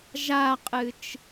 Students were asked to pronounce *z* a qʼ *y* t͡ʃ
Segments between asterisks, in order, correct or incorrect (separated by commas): incorrect, incorrect